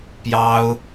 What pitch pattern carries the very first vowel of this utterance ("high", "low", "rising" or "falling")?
high